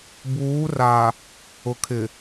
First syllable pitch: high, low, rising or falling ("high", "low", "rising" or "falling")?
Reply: rising